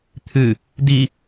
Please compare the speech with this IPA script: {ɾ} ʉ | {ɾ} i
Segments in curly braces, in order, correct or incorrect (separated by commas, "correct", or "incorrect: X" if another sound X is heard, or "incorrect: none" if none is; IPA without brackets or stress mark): incorrect: t̪ʰ, incorrect: d